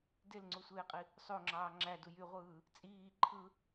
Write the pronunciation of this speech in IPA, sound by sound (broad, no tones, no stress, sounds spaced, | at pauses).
d e l ŋ͡ǀ u sʷ eː qʼ i | sˤ o ŋ͡ǁ ɑː ŋ͡ǁ æ d u j y ʁʷ ɯː | t͡sʼ iː ǃʰ ɯ